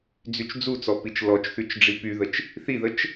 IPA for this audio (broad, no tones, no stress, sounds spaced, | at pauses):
d͡z y t͡ʃ d͡z u t͡s ɔ p i t͡ʃ l ɔ t͡ʃ θ y t͡ʃ ɖ͡ʐ i p y ð ə t͡ʃ | θ i ð ə t͡ʃ